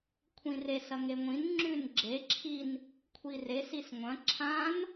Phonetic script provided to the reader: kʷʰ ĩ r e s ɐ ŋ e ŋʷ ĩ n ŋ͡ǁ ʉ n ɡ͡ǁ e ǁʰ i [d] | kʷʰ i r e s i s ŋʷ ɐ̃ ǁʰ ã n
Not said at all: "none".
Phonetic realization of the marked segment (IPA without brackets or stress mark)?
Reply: n